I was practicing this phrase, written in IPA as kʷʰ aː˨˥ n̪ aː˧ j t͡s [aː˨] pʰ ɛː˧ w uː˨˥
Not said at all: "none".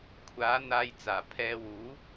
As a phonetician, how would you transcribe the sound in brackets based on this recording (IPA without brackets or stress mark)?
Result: aː˨˩